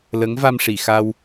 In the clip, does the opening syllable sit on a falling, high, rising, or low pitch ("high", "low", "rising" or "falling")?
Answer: rising